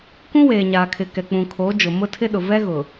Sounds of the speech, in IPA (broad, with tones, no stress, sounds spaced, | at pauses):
k ũ˦ w eː˨ ɲ aː˨ kʰ ɪ˨ k ɛ˨ k͡p ũ˨ kʰ oː˨˦ d͡ʒ ʊ˨ m ʊ˦ tʰ ɪ˦ ɗ ʊ˨ v ɛ˦ ɣ ʊ˨